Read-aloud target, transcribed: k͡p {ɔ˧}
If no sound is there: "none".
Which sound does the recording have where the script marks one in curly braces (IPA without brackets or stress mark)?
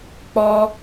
ɔ˧